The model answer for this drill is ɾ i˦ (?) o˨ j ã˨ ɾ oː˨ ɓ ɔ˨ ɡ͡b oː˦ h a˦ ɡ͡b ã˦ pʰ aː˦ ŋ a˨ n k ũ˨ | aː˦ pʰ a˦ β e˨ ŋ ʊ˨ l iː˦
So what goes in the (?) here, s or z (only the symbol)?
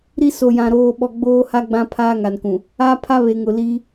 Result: s